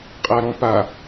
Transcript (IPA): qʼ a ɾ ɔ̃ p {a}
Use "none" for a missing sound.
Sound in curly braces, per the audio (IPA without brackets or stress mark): a